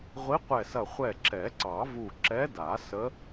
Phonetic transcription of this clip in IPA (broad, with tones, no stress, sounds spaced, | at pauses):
ʁʷ i˧˥ qʷ ɛ˧˩ s ɐ˧˩ χʷ ɛ˧˩ ǁ ɛ˨˩˦ ǀ ɑ˨˩˦ v u˧˩ ǁ ɛ˧˥ d a˨˩˦ s ə˧˥